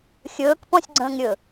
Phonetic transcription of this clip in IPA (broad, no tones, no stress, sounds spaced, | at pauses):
xʲ ɵː k p ɔ̃ sʲ ɡ͡ǀ ə̃ː ŋ ɾʲ ɵ